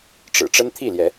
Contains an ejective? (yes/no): no